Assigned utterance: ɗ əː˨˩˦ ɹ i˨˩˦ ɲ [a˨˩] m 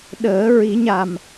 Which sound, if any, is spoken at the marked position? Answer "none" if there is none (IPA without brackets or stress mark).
a˨˩